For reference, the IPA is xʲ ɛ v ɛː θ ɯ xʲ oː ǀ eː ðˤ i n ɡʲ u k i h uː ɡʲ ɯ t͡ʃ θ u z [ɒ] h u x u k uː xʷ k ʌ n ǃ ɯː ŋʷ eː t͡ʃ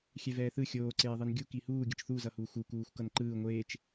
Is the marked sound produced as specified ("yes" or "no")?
no